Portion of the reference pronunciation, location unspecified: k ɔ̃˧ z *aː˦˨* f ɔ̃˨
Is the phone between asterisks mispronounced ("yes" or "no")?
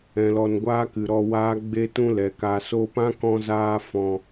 yes